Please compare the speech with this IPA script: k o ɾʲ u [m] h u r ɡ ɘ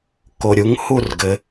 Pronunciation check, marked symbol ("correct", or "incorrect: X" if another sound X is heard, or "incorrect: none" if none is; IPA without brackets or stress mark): incorrect: ŋ